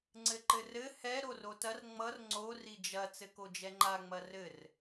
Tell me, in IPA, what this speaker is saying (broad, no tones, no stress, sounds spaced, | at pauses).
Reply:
ŋ͡ǀ ɘ ǃ ɘ r ɘ h ɛ ɾ o r o t ɐ r ŋ͡m ʌ r ŋ͡ǀ o r i d͡ʒ ɐ t͡s ɘ k o d͡ʒ ɛ ŋ͡ǃ a ŋ͡m ɐ r ɘ r